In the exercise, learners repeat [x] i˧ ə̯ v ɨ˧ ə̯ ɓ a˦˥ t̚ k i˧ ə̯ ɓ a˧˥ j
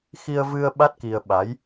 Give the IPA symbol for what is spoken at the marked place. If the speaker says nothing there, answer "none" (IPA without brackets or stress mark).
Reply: x